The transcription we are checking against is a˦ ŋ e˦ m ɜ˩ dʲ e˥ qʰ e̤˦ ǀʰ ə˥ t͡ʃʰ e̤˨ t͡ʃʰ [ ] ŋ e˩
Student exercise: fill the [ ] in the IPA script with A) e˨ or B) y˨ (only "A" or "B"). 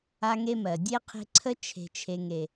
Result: A